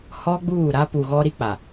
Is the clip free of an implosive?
yes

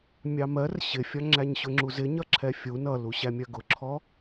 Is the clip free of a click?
no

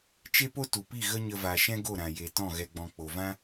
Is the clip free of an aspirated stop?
yes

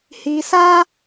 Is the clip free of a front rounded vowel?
yes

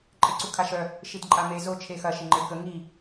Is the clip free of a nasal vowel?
yes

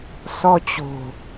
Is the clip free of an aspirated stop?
yes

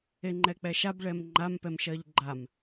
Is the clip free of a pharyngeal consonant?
yes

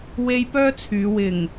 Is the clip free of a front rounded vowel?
no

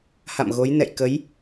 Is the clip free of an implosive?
yes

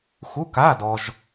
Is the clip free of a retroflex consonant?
yes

